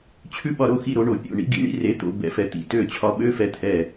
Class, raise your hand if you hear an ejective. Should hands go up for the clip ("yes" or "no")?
no